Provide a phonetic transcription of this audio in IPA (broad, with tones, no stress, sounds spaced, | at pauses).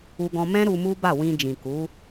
u˧ ɡ ɔ̃˧ m ɛ̃˦ ɾ u˧ m u˦ b a˦˨ w ĩ˧ d͡ʒ ĩ˨ k u˨˦